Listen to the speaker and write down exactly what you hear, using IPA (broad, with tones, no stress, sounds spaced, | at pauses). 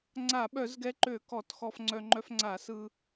ŋ͡ǀ a˧˩˧ ɓ œ˧˩˧ z ɡ ɛ˧ ǃ ø˧˩˧ k ɔ˧˩˧ t x ɔ˧ f ŋ͡ǀ œ˧ ŋ͡ǃ œ˧ f ŋ͡ǀ a˧˩˧ s ɯ˧